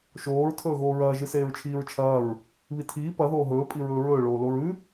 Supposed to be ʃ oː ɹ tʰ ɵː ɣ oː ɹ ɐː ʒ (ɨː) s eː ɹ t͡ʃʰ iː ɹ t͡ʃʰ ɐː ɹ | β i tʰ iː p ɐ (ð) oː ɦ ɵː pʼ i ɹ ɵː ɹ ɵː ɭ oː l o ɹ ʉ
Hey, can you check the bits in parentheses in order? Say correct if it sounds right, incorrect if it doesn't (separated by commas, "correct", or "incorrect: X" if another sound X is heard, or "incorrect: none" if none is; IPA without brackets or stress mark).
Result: incorrect: ɨ, correct